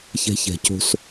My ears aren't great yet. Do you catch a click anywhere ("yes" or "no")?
no